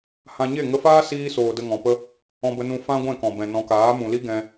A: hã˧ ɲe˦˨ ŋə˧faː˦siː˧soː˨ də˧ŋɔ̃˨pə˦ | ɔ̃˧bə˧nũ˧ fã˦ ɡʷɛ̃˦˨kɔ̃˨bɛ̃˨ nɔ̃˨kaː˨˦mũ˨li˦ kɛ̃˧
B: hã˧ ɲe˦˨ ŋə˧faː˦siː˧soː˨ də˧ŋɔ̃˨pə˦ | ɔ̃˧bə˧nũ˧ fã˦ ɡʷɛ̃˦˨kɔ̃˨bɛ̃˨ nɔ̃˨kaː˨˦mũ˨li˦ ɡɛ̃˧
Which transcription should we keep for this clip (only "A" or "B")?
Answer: B